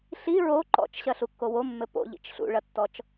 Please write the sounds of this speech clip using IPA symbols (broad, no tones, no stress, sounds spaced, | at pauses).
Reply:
ɬ i ɹ o ǃ ɔ̰ t͡ʃ ɕ ɐ ɬ u kː o w o mː ɘ p o̰ ʎ ḭ t͡ʃ ɬ ṵ ɭ ɐ tː ɔ t͡ʃ